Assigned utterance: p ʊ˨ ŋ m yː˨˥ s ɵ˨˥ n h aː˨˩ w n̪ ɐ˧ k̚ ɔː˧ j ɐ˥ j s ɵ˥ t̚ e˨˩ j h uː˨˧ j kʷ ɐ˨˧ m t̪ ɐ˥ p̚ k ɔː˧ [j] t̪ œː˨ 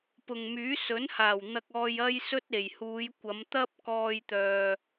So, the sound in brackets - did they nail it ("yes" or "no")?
yes